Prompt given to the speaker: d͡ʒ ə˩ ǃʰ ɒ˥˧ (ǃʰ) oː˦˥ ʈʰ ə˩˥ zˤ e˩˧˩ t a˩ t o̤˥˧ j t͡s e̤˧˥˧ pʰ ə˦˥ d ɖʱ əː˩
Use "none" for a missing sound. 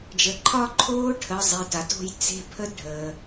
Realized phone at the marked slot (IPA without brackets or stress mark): ǃʰ